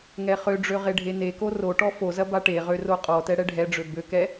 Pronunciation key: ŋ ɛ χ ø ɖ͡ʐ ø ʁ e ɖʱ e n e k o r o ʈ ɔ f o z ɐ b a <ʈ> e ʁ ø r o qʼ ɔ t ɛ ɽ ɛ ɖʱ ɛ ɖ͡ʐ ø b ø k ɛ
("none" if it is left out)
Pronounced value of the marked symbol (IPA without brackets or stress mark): ʈ